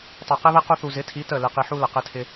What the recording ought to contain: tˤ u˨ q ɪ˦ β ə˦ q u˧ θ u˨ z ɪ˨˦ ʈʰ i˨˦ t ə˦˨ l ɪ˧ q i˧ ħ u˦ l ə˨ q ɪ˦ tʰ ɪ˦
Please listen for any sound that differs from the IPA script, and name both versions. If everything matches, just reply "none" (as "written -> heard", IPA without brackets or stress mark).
ʈʰ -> tʰ